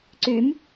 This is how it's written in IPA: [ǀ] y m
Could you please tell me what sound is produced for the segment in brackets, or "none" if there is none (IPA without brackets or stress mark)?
ǀ